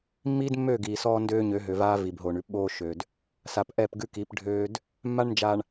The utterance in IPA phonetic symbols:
mː iː˦ d mː øː˦˨ ɡ iː˨ s ɔː˦ n d øː˦ ɲ ø˨˦ ɦ ø˨ v aː˦ v i˨ b ɦ oː˨ ɳ ʉ˦ p ɓ oː˦ ʃ ø˨ d | s a˨ p ʔ ɛ˦˨ p ɡ ʉ˦ k i˨˦ p ɖʱ øː˦ d | mː a˦ ɳ n d͡ʒ aː˨ ɳ

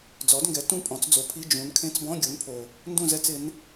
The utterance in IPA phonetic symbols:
d͡z ɔ˩˥ d ŋ ɡ ɛ˩˥ t ũ˥˨ pʼ ɔ̃˩˥ t͡s d͡z o˩˥ pʰ i˧˥˧ d͡ʒ ũ˩˥ n kʰ ẽ˧˥˧ t͡s b ɔ̃˧˥˧ ɡʲ o˩˥ n pʰ o˩ | n d ũ˥˨ z ɛ˧˥˧ t͡s ɪ˩˥ n

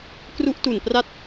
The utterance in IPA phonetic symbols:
k r u˦˥ ʔ t u˨˩ n p r a˦˥ t̚

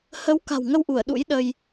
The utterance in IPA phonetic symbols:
h ə˨˦ w k a̤˨˩ w ŋ ə˧ w ʔ u˧˩ ə̯ ɗ ṵ˧˥ j ɗ ə˧ j

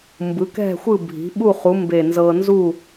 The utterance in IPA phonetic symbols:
m b ɯ˩˥ k ɛ̤˥˨ xʷ ɯ˥˨ bʱ i̤˩˥ ɓ u˥˨ χ u˩˥ m b e˧˩ n z ɤ˧ n z u˥˨

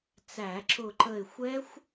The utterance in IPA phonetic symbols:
t͡s æ˧˩˧ ǁ ʊ˦˨ ǃ ə˦˨ ɪ̯ xʷ ɛ˦˥ xʷ

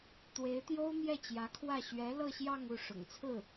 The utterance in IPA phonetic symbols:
t̪ w e˧˥ ɪ̯ t̪ j o˥ ʊ̯ m j ɛ˥˩ t͡ɕ j ä˧˥ kʰ w ä˥˩ ɕ ɥ ɛ˧˥ l ɤ˥˧ ɕ j ɑ˥˧ ŋ u˥˩ ʂ ʊ̰˨˩ ŋ t͡sʰ ɹ̩˥˩

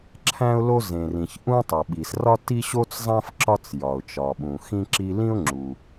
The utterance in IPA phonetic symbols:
ǁʰ æ̃˥ ʊ̯ l o˥ z ẽ˩ r ĩ˩ ç ʔ ũ˥ tˤ o˩ ɓ i˩ s r ɒ˥ t i˥ ɕ o˥ t͡s zˤ æ̃˥ f ǁ ɒ˥ t͡s j ɒ˩ ʊ̯ t͡ʃ ɒ˩ ɓ ũ˩ x ĩ˥ ǁ i˥ l ĩ˥ ʊ̯ ŋ͡ǁ u˩

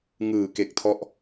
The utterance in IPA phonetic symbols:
ŋ ɯː˨˩ k e˨˩ k̚ tʰ ɔ˦˥ ʔ

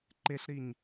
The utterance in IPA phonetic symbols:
ǃ e ɬ ɾ i ɲ

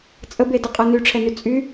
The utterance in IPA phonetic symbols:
t͡sʼ ə b e d ə qʼ ɤ n y ʈ͡ʂʰ ɛ n y t͡sʼ y

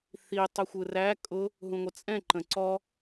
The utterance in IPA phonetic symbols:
θ i tˤ ʊ xʷ ɯ r æ kʼ ʊ | ɦ ũ ŋʷ ə t͡sʼ ɛ̃ ǃ ə̃ ǀ ɔ

